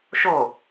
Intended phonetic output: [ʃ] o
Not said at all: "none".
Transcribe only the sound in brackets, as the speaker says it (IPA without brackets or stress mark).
ʃ